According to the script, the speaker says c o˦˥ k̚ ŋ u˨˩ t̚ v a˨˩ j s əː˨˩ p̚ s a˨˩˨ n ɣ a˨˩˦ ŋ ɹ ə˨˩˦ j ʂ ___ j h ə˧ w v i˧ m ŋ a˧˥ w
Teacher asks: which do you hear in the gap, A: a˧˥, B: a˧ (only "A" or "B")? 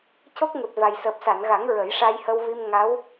B